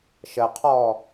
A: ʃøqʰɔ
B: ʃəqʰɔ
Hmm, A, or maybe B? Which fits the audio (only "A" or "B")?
B